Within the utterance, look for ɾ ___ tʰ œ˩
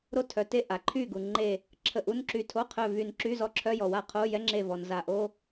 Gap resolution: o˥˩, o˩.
o˥˩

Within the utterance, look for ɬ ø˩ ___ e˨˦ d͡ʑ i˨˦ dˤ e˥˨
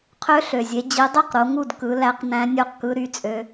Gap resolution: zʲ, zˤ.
zʲ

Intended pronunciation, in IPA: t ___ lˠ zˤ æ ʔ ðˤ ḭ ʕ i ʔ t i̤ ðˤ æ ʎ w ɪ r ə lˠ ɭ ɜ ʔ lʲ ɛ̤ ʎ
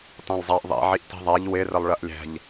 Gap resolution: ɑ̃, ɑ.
ɑ̃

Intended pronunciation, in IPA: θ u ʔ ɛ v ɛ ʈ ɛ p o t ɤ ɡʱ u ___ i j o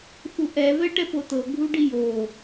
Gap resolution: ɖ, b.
ɖ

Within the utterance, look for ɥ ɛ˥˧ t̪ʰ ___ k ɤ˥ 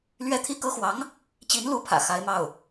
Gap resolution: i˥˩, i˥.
i˥˩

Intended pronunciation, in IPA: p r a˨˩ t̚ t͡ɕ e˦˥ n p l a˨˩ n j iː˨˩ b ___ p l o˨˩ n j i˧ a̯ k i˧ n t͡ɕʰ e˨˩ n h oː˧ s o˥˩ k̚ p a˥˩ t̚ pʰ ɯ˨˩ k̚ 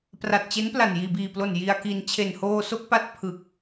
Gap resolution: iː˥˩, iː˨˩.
iː˨˩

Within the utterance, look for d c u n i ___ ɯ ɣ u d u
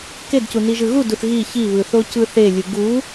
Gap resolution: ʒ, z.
ʒ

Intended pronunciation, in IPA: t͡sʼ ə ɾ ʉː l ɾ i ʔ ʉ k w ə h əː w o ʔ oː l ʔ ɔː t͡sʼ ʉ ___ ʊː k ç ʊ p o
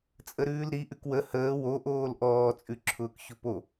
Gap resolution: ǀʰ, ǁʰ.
ǁʰ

